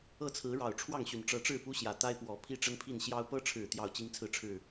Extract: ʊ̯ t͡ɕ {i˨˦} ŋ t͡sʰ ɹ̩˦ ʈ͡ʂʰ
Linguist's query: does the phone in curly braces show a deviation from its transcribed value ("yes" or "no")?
yes